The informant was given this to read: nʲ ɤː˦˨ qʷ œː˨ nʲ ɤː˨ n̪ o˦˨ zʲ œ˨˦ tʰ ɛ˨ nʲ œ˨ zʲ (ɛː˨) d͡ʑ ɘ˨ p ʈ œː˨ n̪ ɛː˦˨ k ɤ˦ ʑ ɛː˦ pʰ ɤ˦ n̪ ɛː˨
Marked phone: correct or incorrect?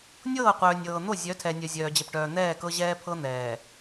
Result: incorrect